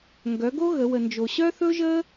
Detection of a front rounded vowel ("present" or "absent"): present